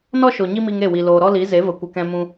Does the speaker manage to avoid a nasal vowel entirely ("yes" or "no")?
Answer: no